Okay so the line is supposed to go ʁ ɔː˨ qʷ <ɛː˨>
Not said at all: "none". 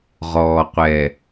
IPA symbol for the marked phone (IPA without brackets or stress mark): ɛː˨